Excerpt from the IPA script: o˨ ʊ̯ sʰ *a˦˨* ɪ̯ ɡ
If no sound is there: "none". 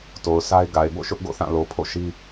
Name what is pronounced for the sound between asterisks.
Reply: a˦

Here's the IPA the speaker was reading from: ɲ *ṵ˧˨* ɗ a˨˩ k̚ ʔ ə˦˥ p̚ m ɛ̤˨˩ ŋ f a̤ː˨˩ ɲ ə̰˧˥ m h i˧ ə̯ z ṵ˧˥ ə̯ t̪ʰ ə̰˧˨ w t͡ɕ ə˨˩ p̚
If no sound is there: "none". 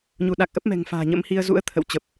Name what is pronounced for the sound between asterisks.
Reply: u˧˩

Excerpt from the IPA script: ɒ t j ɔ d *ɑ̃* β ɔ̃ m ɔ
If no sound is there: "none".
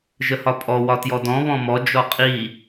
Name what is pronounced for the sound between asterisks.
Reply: ɔ̃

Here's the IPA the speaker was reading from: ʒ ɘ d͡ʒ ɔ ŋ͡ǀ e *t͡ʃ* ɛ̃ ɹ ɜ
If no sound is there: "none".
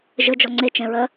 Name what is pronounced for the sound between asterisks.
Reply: t͡ʃ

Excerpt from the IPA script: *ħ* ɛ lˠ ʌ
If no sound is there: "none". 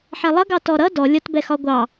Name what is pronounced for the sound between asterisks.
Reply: ħ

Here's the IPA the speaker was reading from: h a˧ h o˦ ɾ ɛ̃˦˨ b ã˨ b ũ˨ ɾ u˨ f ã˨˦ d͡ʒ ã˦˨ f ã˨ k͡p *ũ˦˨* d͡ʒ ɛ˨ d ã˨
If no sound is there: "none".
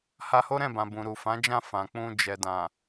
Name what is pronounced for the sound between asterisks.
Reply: ũ˧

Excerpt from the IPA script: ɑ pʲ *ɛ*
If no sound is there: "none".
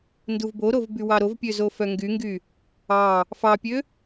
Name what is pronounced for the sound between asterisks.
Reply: ø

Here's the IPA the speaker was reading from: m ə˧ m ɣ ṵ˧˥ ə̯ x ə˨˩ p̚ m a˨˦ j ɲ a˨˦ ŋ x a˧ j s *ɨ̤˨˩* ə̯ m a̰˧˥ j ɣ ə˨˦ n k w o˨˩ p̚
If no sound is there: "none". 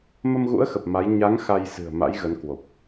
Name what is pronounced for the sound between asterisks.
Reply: ɨ̤˨˩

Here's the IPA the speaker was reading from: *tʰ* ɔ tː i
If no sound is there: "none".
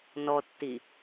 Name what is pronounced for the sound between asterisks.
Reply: n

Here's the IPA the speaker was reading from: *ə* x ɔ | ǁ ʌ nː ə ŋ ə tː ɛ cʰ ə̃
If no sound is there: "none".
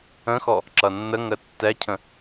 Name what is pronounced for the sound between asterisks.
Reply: ə̃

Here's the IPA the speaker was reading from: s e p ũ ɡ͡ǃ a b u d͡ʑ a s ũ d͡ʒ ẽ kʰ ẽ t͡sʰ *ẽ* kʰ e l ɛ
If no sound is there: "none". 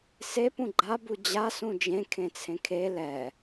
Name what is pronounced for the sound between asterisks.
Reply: ẽ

